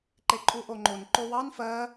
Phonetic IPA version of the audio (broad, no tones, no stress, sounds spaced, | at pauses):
ǃ e ǃʼ u ʔ o ŋ͡ǃ o n ǃ o w ɑ n f ɜ